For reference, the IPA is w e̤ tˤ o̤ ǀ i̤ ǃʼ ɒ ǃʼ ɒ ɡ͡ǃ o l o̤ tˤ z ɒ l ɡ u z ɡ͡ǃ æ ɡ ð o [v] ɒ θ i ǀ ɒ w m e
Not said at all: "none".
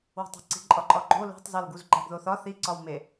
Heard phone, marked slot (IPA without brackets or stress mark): θ